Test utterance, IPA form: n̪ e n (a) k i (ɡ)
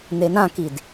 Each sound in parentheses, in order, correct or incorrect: incorrect: ã, incorrect: d

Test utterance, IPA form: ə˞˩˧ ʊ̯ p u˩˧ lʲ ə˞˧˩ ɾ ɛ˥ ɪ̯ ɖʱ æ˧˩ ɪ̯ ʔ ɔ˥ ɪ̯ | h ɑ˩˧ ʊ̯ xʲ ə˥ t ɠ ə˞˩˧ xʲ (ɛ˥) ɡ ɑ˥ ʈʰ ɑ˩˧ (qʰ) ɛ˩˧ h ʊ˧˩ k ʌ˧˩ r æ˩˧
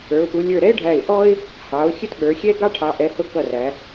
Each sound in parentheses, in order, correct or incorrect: correct, incorrect: ʔ

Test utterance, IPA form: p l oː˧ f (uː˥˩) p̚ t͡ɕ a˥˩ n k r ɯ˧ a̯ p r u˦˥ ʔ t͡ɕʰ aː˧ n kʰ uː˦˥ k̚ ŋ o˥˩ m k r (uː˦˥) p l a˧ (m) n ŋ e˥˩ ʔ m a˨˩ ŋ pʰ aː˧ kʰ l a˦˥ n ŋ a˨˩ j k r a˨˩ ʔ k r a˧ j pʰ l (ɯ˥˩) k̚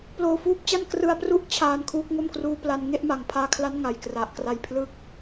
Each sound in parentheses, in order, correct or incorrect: incorrect: uː˦˥, correct, incorrect: none, incorrect: ɯ˦˥

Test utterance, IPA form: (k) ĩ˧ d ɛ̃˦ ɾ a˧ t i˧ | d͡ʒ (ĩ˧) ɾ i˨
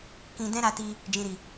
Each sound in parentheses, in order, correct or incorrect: correct, incorrect: ĩ˨

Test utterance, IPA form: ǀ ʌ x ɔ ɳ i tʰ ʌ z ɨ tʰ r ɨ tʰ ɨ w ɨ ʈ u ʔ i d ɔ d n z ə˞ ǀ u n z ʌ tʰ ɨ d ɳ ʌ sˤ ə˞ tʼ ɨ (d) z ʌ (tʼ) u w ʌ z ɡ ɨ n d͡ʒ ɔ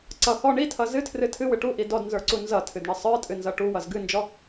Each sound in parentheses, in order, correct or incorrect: incorrect: n, incorrect: ʈ

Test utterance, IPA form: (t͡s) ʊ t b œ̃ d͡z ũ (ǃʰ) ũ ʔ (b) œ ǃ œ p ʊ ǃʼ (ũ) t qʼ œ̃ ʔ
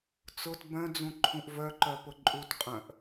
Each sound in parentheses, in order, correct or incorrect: correct, correct, incorrect: v, incorrect: u

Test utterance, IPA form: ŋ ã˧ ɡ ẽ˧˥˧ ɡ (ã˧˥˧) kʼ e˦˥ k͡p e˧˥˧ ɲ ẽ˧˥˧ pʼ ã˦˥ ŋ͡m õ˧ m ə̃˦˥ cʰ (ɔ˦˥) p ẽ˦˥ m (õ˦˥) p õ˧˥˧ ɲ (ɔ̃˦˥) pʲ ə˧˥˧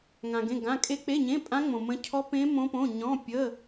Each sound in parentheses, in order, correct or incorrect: correct, correct, correct, incorrect: ɔ̃˧˥˧

